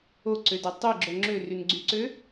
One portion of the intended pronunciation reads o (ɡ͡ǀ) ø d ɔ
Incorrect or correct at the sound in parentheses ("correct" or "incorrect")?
incorrect